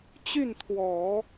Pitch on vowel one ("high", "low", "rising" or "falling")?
falling